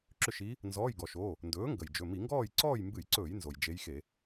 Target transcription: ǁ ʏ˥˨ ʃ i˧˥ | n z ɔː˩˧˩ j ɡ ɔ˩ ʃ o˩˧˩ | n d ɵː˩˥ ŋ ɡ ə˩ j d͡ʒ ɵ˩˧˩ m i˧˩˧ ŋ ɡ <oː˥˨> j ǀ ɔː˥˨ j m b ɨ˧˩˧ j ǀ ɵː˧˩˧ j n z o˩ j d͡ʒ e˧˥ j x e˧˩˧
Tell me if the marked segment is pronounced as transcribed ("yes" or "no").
no